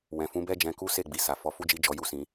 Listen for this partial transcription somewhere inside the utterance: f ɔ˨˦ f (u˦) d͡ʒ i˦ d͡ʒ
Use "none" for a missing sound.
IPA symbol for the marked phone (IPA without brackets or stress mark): u˦